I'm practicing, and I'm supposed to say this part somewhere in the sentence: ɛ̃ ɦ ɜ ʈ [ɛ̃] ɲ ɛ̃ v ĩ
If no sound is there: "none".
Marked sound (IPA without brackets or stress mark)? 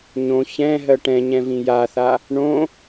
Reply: ɛ̃